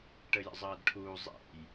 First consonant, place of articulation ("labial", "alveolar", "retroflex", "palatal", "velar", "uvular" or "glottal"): retroflex